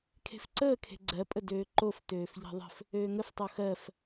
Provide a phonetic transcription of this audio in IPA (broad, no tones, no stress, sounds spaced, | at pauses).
kʰ e̤ f ǀ əː kʰ e̤ ɡ͡ǀ ɜ pʼ ə d øː ǃ o f t øː f ʎ e̤ ðˤ ə̤ f | øː ŋ ə f tˤ o x ɜ f